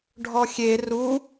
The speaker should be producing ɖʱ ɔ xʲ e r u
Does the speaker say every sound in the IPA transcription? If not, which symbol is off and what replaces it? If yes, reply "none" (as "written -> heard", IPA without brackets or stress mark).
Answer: none